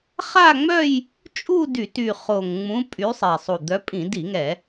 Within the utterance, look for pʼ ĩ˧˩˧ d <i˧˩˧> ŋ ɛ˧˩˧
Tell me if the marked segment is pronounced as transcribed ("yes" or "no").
yes